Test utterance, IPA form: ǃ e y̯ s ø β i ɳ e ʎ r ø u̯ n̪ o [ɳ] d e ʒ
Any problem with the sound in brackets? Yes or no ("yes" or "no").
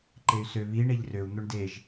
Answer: no